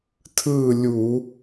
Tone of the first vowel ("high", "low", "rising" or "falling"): falling